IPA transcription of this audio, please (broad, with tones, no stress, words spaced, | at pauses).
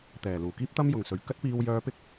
t̪ɛː˨˩luː˨˩kiː˥p̚t̪ɐ˥m jʊ˨˩ŋsɵ˨˩ɥ kɐ˥t̚piː˧wjœː˧pɪ˥k̚